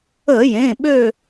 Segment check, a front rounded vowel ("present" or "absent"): present